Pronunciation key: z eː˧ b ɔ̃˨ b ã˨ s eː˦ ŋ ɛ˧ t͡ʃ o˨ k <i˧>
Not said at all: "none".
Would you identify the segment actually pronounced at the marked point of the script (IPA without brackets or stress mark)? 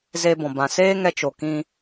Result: ĩ˧